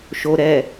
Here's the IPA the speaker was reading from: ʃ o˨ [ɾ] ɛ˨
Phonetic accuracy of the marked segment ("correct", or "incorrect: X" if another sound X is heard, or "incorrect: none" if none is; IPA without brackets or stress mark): correct